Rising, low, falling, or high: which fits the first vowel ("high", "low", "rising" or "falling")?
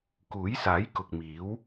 rising